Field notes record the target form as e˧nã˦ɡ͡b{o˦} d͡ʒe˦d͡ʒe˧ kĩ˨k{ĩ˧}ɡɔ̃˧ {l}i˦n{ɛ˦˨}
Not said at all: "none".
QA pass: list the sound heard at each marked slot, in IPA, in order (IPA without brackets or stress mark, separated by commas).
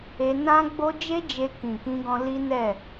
o˦, ĩ˧, l, ɛ˦˨